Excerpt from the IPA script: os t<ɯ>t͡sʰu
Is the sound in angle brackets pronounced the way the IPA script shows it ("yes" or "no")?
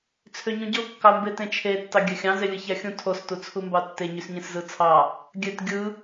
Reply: no